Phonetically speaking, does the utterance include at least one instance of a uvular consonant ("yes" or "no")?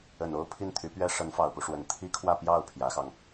no